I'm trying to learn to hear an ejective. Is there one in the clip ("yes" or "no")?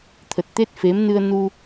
no